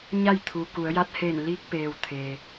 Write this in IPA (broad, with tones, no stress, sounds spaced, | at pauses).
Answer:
ɲ a˥˨ j t̪ʰ u˩ k u˩˧ ə̯ j a˧˥ t̚ h eː˧˩ n l iː˧ k̚ p eː˩ w t̪ʰ e˩